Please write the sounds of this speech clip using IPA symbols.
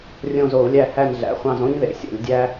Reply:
rʲõ˦˨zo˧˩˧u̯lʲæ˦˨ hæ˦˨nɮæ̰˩˧˩χʷɑ̃˦˨z õ˦ɲ ðḛ˧˩˧sʲo̰˧˩˧lʲ dʲæ˦

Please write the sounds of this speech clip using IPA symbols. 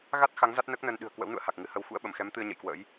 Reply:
ɣa˦˥t̚ xa˨˦ŋ za˦˥t̚nəː˦˥k̚nəː˧n ɗɨ̤˨˩ə̯kwə̰˧˥wnṵ˧˨ə̯ ha˨˩k̚ŋɨ˨˦hə˧w xṵ˧˥ə̯ɓə˧˩mxɛ˨˦m t̪ɨ˧ə̯ ɲə̰˧˨jkwə̰ː˧˥j

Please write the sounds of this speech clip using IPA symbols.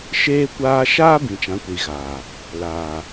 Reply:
ʃeː˦kʷaː˦ ʃaː˦bĩ˨ t͡ʃã˨˦kʷi˨ɣaː˨ | laː˨

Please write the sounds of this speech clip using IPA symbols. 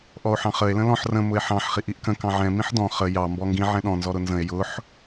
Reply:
ʔɔo̯ħɑ̃χəe̯ lə̃lɔ̃ħ rə̃ mʊe̯ħɑ̃ħ χiʔiʔkə̃ kɑ̃ʕɛ̃ mĩħdɔ̃ χə jɑ mbɔŋɡĩ ʕɛ̃ɗɔ̃ nzɔɾʊnzə̃e̯ jʊħ

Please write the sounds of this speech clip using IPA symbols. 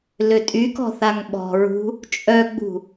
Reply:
løtʼykɔ̤ θaŋɓɔ̤ɹṳ | t͡ʃʼœɡ͡bṳ

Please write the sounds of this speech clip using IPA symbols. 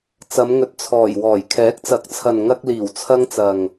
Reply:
t͡sɐ˨˧mŋɵ˨˥t̚t͡sʰɔː˨˩jwɔː˨˩j kʰɛː˨˥k̚t͡sɐ˨˥k̚t͡sʰɐ˨n ŋɐ˧k̚ liː˨˩wt͡sʰɐ˧ŋt͡sɐ˨ŋ

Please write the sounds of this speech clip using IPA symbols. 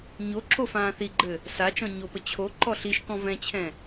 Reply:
ɲoǁo fãːθiɡ͡ǃɘ | sat͡ʃɔ̃ ɲopə t͡ɕʰo ǃɔɬiʃkɔ̃ vɛ̃t͡ɕʰɛ̃

